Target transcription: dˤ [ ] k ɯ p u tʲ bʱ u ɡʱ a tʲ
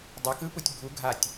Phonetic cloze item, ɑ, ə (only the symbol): ɑ